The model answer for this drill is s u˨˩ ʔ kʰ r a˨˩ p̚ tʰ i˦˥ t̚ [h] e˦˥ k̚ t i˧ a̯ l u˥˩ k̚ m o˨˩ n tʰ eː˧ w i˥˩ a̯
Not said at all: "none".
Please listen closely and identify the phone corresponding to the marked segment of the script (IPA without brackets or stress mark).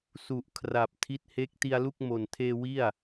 h